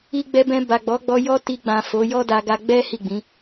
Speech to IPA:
i˧ ɡ͡b ɛ˧ b ɛ̃˧ b a˨ ɡ͡b ɔ˨˦ ɡ͡b ɔ˧ j ɔ˧ t i˧ ɡ͡b ã˨ f o˨˦ j ɔ˦ d a˧ ɡ a˧ ɡ͡b ɛ˦ h i˦˨ ɡ͡b ĩ˨˦

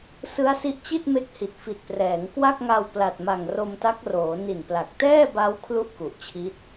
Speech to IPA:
s ɯ˦˥ a̯ s i˦˥ ʔ t͡ɕ i˥˩ t̚ m e˦˥ k̚ h i˨˩ t̚ f i˨˩ t̚ p r ɛː˩˦ ŋ k w a˥˩ k̚ ŋ a˧ w p l a˨˩ t̚ m a˨˩ ŋ r o˧ m t a˦˥ k̚ r oː˩˦ n i˨˩ n p l a˨˩ k̚ t ɛː˥˩ b a˦˥ w kʰ l u˥˩ ʔ k u˨˩ ʔ t͡ɕʰ i˦˥ t̚

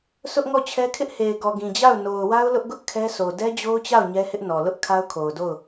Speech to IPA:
s ʊ˦ ʔ ŋ ɔ˦˨ t͡ɕʰ ɛ˦ kʰ ɪ˦ ʔ h e˨ ɪ̯ ɡ ɔ˨ ɡ ĩ˨ d͡ʑ a˦˨ ʊ̯ n o˨ ʊ̯ w a˦ ʊ̯ l ʊ˦ ʔ ɡ ʊ˦ ʔ kʰ ɛ˦ s o˨ d ɛ˦ d͡ʑ o˦ ʊ̯ t͡ɕ a˦˨ ʊ̯ ɲ ɛ˦ h ɪ˦ ʔ n ɔ˨ l ʊ˦ ʔ kʰ a˦ ʊ̯ kʰ o˨ ʊ̯ d o˦˨ ʊ̯

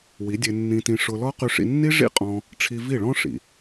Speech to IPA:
w i˨˦ dʲ e˧ nː ĩ˧ t ĩ˧ ʂ ʊ˧ l ɔ˦ q y˧ ʂ ḭ˧ nː i˦ ʐ ḭ˦ qʼ ɔ̃˧ | ʈ͡ʂʰ i˧ v i˦˨ ɭ ɔ̃˦ ʂ ḭ˨

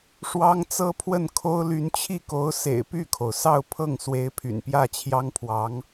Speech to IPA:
ʂ w ɑ˥ ŋ t͡s ɤ˥ pʰ w ə˥˩ n kʰ o˥ ʊ̯ l y˧˥ n t͡ɕʰ i˥˩ k o˧˥ ʊ̯ s ḛ˨˩ ɪ̯ p y˥˩ kʰ o˩ ʊ̯ s ɑ˥˧ ʊ̯ pʰ ɤ˥˩ ŋ s w e˧˥ ɪ̯ pʰ y̰˨˩ n p j ä˥˩ t͡ɕʰ j ɑ˥ ŋ pʰ w ɑ˧˥ ŋ

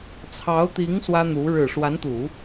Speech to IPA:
t͡sʰ ɑ˧˥ ʊ̯ t̪ i˧˥ ŋ s w ä˥ n̪ u˧˥ ɻ ɻ̩˨˩ ʂ w a˧˥ n t̪ u˨˩˦

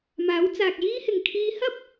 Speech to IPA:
m aː˨˥ w t͡s aː˨ k̚ j iː˥ h ɪ˨ ŋ kʰ iː˧ h ɐ˥ p̚

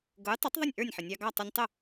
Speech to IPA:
ɡ ʊ˩˥ j tˤ ʊ˩˥ tˤ ðˤ ə˥˩ nʲ ʔ ə˞˥˩ nʲ ħ ɪ˩ nʲ ɑ˧ ɡ ɑ˥˩ tˤ ʊ˧ nʲ tˤ ə˥˩

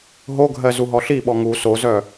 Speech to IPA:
ɦ o ɡʱ ɜ z u ɦ ɔ ɬ i ɓ ɔ ŋ u s o z œ

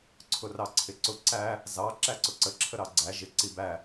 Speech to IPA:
ǀʰ ʊ r ɑ ǀʰ ɪ ǀ ʊ ǀ æ | z ɑ ǁ æ ǀ ʊ ǀ ə ǁʰ ə ɾ ɑ ɡ͡ǀ æ ʒ ɪ ǀ i b æ

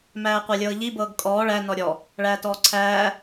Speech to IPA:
m æː qʷ æ lʲ ɤː ʎ i b ɤː ɡ kʼ ɔː ɭ æ n ɔ ɾʲ ɔ | ɭ æː t ɔː ǀʰ æː

